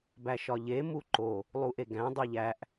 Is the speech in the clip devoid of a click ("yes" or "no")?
no